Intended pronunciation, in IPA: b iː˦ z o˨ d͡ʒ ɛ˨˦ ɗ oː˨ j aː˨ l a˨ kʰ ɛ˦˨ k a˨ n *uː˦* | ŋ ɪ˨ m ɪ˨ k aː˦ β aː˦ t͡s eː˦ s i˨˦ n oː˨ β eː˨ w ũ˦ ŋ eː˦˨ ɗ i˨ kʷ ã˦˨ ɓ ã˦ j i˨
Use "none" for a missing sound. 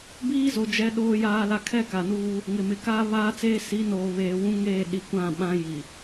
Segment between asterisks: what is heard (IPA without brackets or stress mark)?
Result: uː˦